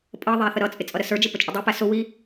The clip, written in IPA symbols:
pʼ ʌ ðˤ æ θ ə ɾ ʌ t͡sʼ ɪ t͡sʼ ʌ ɾ ə s ə˞ d͡ʒ ɪ p ə t͡ʃʼ ə dˤ u p æ s ʊ w i

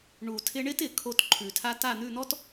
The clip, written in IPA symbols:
ɳ u˨ tʰ ɪ˦ ɳ ɪ˦ t ɪ˨ kʰ o˦˨ t ǃʰ ʉ˨ tʰ a˦ t a˦˨ n̪ ʉ˦˨ n̪ ɔ˦ t

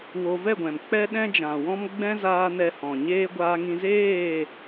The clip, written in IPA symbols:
w o˧ v ɛ˦˨ ɡʷ ɛ̃˨ m k͡p ɛ˦ ɗ ɛ̃˦ d͡ʒ ã˨ w ɔ̃˦ m ɡ͡b ɛ̃˦ z aː˧ n ɛ˧ h ɔ̃˨ ɲ eː˦ ɡʷ aː˧ ŋ ĩ˧ z eː˦˨

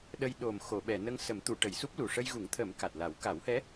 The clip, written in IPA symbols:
ɗ ə˧ j ɗ o˨˩ m x o˨˩˨ ɓ ɛ˨˩˨ n ə˧ ŋ s ə˨˩˦ m t̪ u˨˩˨ ʈ ə˨˩˨ j s u˦˥ p̚ l u˨˩ ʂ ə˧ j ɣ u˨˩˦ ŋ t̪ʰ ə˨˩˦ m k a˨˩ t̚ l a˨˩˦ w k a˨˩˦ w h ɛ˧˥

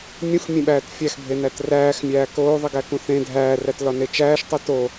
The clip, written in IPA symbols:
mʲ ũ x mʲ ẽ ɓ æː t fʲ æ x bʱ e n æ t r æː x mʲ æː k oː ðˤ i ɡ æ k ũ θ ẽ dʱ æː r æ t l ɒ n e t͡ʃ æː ʃ tˤ u t o

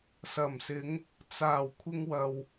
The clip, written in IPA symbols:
s ɐ˨˩ m s ɪ˨˧ ŋ | t͡s aː˨˩ w kʷʰ ɪ˧ ŋ w ɐ˨ w

